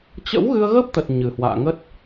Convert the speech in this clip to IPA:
t͡ɕ ə̰˧˥ w ɣ ɨ˧ ə̯ ɣ əː˦˥ p̚ t̪ ə˨˩ t̚ ɲ ɨ˨˩ h w a̰ː˧˨ ŋ ə˦˥ t̚

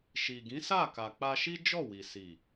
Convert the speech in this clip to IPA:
ʃ i˨ ɡ ĩ˨˦ s a˦˨ k a˨ k͡p a˧ ʃ i˦ d͡ʒ ɔ˦˨ w i˨ s i˨

